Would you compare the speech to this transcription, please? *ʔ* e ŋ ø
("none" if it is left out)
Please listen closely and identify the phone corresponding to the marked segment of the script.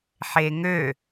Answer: ħ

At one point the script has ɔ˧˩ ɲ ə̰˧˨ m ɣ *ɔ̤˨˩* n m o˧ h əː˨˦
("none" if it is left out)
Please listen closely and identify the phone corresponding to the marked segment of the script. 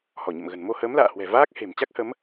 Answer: ə̤˨˩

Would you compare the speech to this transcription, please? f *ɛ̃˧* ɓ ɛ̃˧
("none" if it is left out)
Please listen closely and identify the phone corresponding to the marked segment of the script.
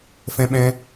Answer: ɛ̃˧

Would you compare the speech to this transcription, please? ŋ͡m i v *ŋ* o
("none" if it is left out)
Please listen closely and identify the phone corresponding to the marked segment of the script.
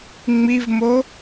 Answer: m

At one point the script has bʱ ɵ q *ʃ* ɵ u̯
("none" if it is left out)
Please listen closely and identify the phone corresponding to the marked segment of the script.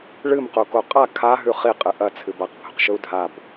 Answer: ʃ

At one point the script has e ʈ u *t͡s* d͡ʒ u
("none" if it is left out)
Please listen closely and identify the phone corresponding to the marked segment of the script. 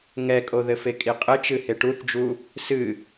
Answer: θ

